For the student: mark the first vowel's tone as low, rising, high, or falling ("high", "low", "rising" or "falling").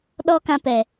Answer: high